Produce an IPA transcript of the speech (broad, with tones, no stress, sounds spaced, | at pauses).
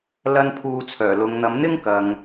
l ɐ˥ n pʰ uː˧ t͡sʰ œː˨˩ l ʊ˨˧ ŋ n̪ ɐ˨˥ m n̪ ɪ˥ ŋ k ɐ˨ ŋ